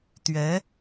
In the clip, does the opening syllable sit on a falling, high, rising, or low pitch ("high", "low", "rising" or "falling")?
rising